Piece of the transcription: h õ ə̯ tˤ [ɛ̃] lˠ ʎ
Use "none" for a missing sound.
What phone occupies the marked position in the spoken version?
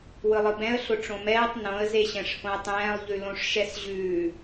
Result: ɛ̃ː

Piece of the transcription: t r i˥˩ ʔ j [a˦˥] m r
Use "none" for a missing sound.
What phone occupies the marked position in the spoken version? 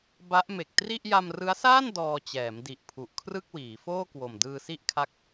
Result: a˧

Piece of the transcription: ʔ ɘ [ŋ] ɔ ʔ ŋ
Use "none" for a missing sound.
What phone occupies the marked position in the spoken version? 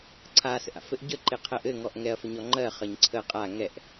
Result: ŋ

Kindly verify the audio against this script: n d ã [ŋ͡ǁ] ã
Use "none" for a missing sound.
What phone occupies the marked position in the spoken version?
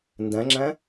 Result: ŋ͡ǁ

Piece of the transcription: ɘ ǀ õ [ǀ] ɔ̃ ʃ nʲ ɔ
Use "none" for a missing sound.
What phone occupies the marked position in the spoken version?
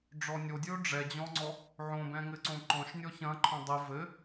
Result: ǃ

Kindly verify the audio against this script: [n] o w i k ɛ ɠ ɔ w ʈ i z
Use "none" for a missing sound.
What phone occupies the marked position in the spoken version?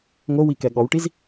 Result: ŋ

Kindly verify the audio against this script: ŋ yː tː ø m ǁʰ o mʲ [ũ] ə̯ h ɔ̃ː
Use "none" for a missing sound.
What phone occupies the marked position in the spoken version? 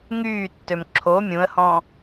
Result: ũ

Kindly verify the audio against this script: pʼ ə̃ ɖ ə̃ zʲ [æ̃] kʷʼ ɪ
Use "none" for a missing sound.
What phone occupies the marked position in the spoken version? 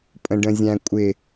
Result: æ̃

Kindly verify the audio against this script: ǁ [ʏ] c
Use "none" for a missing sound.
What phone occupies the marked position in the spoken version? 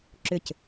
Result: ʏ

